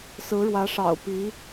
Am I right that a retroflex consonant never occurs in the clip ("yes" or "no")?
no